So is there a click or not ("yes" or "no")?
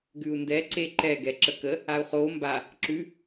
yes